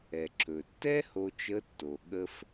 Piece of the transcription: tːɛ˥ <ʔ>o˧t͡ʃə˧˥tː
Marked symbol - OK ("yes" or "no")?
no